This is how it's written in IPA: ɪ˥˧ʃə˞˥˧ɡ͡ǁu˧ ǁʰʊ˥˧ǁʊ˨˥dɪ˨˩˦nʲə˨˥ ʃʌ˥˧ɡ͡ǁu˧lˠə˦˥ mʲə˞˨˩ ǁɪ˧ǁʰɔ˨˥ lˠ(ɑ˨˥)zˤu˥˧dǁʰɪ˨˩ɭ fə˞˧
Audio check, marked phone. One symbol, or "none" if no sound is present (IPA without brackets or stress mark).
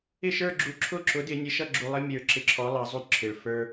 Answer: ɑ˨˥